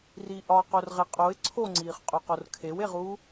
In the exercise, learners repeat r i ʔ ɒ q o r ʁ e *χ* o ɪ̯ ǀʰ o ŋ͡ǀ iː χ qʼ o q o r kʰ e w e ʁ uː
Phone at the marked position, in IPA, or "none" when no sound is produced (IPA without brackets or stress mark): qʼ